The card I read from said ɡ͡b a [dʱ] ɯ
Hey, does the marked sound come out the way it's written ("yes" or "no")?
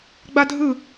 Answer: yes